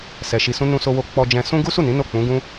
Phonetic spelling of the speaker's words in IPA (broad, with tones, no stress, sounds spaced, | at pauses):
s ɛ˧ ʃ i˧ s ũ˦ n ũ˧ s o˧ w o˧ k͡p ɔ˧ d͡ʒ ɛ̃˧ s ũ˦ ɡ u˦ s u˦˨ n ĩ˨˦ n o˦˨ k͡p ũ˨˦ ɡ ũ˦